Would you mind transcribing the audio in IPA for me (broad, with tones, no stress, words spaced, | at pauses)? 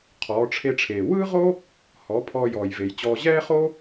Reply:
qʰɔː˩˧ʈ͡ʂʰe˧ʈ͡ʂʰeː˩ wɯː˥ʁo˥ | hɔ˩˧ pʰɔː˧jɔː˩jve˩jt͡ɕɔː˧ ʑɛː˥χo˥